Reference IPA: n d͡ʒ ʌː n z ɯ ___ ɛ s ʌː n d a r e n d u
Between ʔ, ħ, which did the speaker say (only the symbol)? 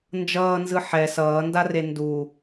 ħ